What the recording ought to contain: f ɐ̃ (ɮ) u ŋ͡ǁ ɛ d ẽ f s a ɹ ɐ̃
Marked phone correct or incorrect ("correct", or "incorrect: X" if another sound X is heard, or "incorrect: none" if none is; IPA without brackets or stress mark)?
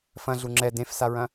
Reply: correct